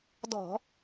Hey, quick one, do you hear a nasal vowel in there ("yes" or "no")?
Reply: no